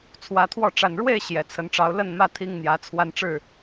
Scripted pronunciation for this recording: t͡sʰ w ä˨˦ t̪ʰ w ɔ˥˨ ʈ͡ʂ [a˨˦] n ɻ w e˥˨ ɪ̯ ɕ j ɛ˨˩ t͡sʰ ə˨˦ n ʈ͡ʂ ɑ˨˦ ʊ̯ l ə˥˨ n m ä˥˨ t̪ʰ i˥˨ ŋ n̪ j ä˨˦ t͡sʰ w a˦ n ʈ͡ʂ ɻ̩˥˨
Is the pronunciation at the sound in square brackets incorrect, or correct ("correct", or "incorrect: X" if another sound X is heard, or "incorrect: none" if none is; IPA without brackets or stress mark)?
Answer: incorrect: a˨˩